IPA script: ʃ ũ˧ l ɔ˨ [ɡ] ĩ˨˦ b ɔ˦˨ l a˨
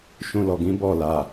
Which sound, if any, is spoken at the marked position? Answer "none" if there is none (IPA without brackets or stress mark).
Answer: ɡ